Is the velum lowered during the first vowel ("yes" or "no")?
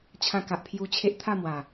yes